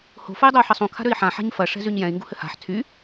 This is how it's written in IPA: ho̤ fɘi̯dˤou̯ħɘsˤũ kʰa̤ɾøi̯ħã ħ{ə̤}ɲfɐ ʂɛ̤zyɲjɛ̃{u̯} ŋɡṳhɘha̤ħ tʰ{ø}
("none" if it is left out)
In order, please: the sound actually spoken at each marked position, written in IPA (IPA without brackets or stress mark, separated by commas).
a̤, i̯, y